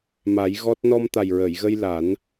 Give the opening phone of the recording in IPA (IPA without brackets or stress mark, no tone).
m